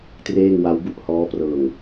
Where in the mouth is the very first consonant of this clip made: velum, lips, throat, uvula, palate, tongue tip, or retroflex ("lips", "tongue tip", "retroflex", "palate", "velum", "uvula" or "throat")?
tongue tip